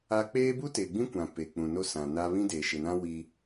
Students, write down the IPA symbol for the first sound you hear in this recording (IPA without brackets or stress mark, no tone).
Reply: a